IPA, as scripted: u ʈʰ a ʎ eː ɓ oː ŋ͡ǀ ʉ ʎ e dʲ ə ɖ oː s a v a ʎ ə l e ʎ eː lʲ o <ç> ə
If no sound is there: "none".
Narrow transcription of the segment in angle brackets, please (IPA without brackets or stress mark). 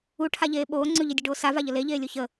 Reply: ç